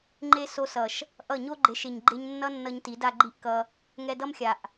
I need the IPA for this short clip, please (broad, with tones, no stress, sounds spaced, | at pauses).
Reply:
ŋ͡ǃ e˦ s o˧ s ʌ˨ ʃ | ʔ ʌ˦˨ ɲ o˦ ɡ͡ǃ e˨˦ ʃ e˨ ɲ ɡ͡ǃ e˧ ɲ nː ʌ˦ nː ʌ˧ ɲ t i˨˦ d a˧ ɡ͡ǃ i˦ ʔ k ʌ˧ | ŋ ɛ˧ d ʌ˦ m xʲ a˨ ʔ